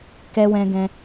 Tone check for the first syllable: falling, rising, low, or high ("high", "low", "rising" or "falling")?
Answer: high